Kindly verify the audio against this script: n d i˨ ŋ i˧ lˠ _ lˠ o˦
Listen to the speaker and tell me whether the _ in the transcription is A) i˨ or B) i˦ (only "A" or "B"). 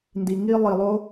A